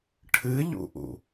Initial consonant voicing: voiceless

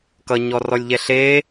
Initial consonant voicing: voiceless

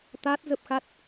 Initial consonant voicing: voiceless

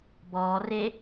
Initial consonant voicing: voiced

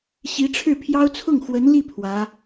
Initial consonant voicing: voiceless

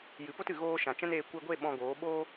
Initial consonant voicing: voiced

